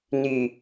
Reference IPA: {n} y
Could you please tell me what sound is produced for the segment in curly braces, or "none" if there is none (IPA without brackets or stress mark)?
n